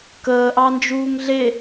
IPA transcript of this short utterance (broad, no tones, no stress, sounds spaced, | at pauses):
k əː ʔ ɑ n d͡ʒ uː ŋ ɮ e